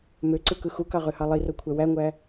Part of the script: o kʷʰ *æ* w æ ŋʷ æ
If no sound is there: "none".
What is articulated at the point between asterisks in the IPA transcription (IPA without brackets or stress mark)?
æ